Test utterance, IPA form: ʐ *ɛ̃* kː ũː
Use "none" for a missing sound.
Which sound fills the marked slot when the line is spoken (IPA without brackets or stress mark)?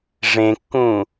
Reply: ẽ